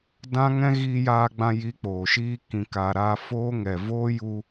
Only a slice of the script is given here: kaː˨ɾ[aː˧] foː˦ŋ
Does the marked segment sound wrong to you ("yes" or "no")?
no